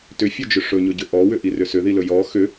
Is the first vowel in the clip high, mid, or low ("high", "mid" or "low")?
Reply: high